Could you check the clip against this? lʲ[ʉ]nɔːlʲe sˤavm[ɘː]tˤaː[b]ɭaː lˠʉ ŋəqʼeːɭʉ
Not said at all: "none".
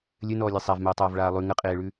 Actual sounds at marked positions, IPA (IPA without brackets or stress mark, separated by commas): ɘ, ɘː, v